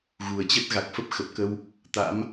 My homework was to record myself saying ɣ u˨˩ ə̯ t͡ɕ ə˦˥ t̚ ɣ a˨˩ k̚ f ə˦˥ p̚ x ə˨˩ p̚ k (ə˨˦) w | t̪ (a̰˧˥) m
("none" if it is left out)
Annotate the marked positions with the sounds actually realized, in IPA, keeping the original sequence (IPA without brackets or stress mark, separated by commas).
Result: ə˧, a̰˧˥